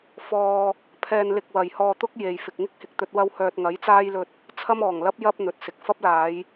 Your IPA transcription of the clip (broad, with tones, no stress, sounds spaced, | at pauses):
f ɔː˧ | pʰ ɛː˧ n l ɪ˧ k̚ w ɐ˨ j h ɔː˧ t̪ ʊ˥ k̚ j e˨ j f ɪ˨ k̚ ŋ ɪ˥ k̚ h ɪ˨ k̚ t̪ ɵ˧ t̚ w ɐ˥ w h œː˧ t̚ ŋ ɐ˨˥ j t͡s aː˥ j l ɵ˧ t̚ | t͡sʰ ɐ˥ m ɔː˨˩ ŋ l ɐ˥ p̚ j ɐ˥ p̚ n̪ ɵ˨˥ t̚ s ɪ˨ k̚ f ɐ˥ p̚ l aː˨˧ j